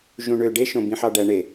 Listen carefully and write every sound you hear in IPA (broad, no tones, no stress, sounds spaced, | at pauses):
ʒ ũ ɳ ø ɖ e ʃ õ b ĩ ħ ɑ ɖ æ ɳ e